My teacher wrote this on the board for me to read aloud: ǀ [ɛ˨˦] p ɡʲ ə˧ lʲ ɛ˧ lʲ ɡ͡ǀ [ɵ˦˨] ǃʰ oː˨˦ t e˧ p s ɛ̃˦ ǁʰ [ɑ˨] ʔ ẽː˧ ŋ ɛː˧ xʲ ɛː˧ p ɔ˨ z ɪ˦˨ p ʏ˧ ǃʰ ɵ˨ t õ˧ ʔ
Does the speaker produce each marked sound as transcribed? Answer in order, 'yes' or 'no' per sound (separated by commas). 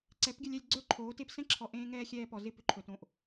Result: yes, no, no